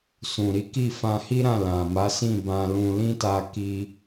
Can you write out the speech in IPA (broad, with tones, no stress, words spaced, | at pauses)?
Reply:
sũ˨ɾi˨˦ki˦˨ fã˧hi˦ɾã˦˨ lã˨ ma˨˦sĩ˦˨ bã˧lũ˧ lĩ˦ta˧ ki˦